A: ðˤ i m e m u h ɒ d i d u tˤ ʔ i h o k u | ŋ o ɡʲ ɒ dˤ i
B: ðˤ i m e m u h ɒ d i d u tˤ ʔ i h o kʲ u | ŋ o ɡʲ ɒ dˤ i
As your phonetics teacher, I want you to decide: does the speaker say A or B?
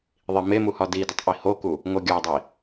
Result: A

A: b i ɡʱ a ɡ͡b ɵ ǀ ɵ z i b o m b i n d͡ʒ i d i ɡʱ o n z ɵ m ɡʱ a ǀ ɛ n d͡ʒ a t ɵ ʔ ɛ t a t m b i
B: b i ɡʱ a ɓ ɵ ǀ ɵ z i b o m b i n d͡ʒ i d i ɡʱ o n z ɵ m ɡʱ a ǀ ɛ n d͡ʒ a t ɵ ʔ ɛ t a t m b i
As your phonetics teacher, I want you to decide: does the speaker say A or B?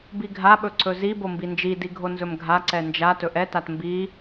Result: B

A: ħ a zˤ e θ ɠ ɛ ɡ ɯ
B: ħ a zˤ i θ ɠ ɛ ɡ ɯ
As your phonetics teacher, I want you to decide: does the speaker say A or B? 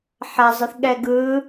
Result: B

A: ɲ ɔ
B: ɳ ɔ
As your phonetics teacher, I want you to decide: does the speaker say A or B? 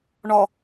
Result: B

